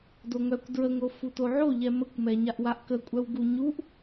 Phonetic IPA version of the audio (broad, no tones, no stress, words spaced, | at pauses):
doŋœkʷ dɹəŋɾo futoʕo ʎɛməkʷmɛ ɲaʔwaʔkəkʷʼœw ɡuɲuʔ